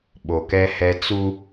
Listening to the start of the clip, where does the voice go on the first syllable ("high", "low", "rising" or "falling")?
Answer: low